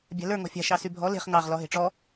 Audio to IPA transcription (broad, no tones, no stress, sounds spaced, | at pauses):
bʲ a̤ l ə˞ ŋ ɔ̤ fʲ a̤ ʃ ɑ s y bʱ ɔ l e̤ χ ŋ ɑ ʁ l ɔ ɦ e̤ ʈ͡ʂ ɔ